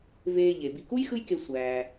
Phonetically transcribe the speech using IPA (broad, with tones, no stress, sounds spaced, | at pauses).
v eː˨ ʎ e˩ b i˨ k u˥ j x ɯ˦ j k e˨ sʷ æː˩